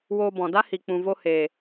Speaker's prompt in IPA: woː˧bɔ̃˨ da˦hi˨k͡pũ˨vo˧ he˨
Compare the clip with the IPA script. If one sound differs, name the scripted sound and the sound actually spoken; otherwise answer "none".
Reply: none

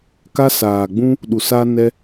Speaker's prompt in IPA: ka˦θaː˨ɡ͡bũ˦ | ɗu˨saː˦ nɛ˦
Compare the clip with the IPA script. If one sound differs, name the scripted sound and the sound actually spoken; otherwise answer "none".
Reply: θ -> s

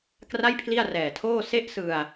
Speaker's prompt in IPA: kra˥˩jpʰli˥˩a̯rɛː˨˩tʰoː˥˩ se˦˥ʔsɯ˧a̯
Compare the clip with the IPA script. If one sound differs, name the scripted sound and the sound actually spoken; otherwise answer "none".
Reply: none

